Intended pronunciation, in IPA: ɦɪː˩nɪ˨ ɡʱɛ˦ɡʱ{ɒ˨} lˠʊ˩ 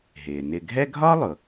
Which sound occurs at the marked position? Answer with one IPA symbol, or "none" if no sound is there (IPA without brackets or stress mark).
ɒ˥